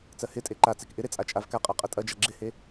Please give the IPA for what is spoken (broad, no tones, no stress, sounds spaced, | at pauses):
t͡s ɜ h ɪ tʼ e ǃ a t͡s e k ʔ ɪ ɾ e t͡sʼ a t͡ʃʼ a v k a qʼ a qʼ ɐ tʼ ɐ d͡ʒ a ɡ͡ǁ ɪ h e